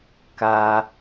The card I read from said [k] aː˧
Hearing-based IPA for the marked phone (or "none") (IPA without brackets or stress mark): k